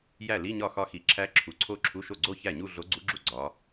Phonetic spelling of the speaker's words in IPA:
j æ˥˩ l i˧˥˧ ɲ ɒ˥˩ x ɒ˧ x i˩˥ ǁʰ æ˧˥ ǁʰ u˩˥ ǀʰ o˥˧ ǁʰ u˧˥˧ ʃ o˥˩ ɡ͡ǀ o˥˧ ç æ˥˩ ɲ u˥˧ ɮ o˧˥ ɡ͡ǀ u˧˥ ɡ͡ǁ u˥˩ ɡ͡ǀ ɒ˧˥

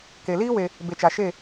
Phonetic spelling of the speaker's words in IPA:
k e˨ l iː˦ w e˧ | b e˨ t͡ʃ a˨ ʃ e˦˨

